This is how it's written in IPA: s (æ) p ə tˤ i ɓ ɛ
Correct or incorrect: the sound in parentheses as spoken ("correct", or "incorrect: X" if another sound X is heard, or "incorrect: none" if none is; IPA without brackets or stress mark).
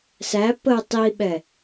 correct